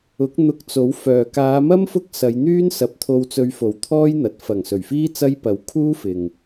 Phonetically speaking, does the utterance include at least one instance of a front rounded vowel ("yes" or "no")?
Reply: yes